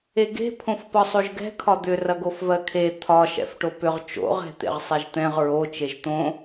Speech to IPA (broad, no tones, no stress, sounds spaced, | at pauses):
e ɡ e̤ pʰ õ f p ɒ sˤ o ʒ ɡ ɛ̤ kʰ ɒ d̪ ʏ r ɐ ɡ o f v ɜ kʰ e t̪ʰ ɒ ʃ ɛ̰ f ʈ o p ʏ ʁ t͡ʃ o̰ ʁ ɛ̤ t̪ ḛ ʁ sˤ ɛ ʒ t̪ ɛ̃ ʁ ɹ o t͡ʃ e ʒ t̪ õ